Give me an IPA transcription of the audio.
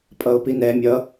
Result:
pʼ ʌ ʊ̯ p i n ɛ mʲ ʌ

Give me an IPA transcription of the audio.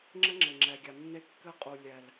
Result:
ŋ͡ǁ ɘ˦ ŋ͡ǁ ɘ˨ ŋ͡ǁ ɛ˨ ɡʲ a˨ nː e˦ kː ɘ˦ qʼ u˨ lʲ ɛ˨ l

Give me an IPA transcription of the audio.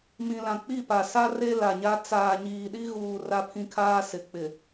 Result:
m ĩ˨ l ã˨ k͡p i˦˨ p a˨ s a˦ r e˦ l a˨ ɲ a˦ t͡s aː˨ ɲ iː˨ ɗ i˦ ɣ uː˨ r a˦ pʰ ĩ˦ kʰ aː˦ s ɪ˨˦ k͡p ɪ˨

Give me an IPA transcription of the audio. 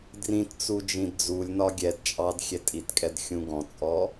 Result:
d r ĩ t t͡s u d͡ʒ ĩ d d͡z u lʲ n ɒ ɡʲ ɛ d t͡ʃʼ ɑ d xʲ ɛ tʼ i t kʼ ɛ d xʲ ũ ɡ ɔ̃ t͡sʼ ɔ

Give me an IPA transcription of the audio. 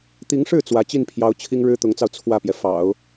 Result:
t̪ i˧˥ ŋ ʂ ɻ̩˥˩ t͡s w ä˧˥ t͡ɕ i˥˩ n pʰ j ɑ˧˥ ʊ̯ t͡ɕʰ i˥ ŋ ɻ ɻ̩˥ t̪ ʊ˧˥ ŋ t͡s ɑ˧ ʊ̯ t͡sʰ w ä˥˩ p j ɛ˩ f ɑ̰˨˩˦ ʊ̯

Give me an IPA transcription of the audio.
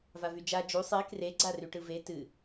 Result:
v a v y d͡ʒ a d͡ʒ u sˤ e k r e ɡ͡ǀ a r y ʈ ɯ v e t ɨ

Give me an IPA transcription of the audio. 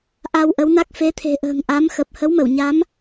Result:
ʔ a˧ w ʔ ə˨˦ w n a˦˥ k̚ f e˨˦ t̪ʰ e̤˨˩ ʔ ə̤ː˨˩ ŋ ʔ a˨˦ m x ə˨˩ p̚ h ə˨˦ w m ə˧˩ w ɲ a˨˦ m

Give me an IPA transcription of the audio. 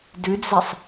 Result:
d ʉ d͡z ɛ sˤ

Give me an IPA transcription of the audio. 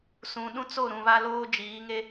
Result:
s ũ˨ ɗ ũ˦ t͡s o˦˨ ɾ ũ˨ β a˦ l oː˦ d͡ʒ iː˨˦ ŋ e˦

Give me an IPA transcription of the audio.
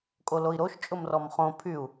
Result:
kʼ o l o i̯ ɾ o ʃ t͡ʃʼ ʊ m r ɔ m χ õ pʰ y u̯

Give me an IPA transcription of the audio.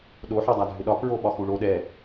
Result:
ɗ o ħ ɔ dˤ a dʱ ʏ ɗ ɒ k ɹ o ɓ ɒ x u ɭ o ɗ ɛ

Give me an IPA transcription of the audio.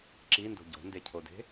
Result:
ǁ i n d o̤ ɟ o̤ n d e cʰ o d e̤

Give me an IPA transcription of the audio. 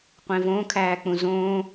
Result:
qʷ ẽ v õ kʰ æː k͡p ũ z õː

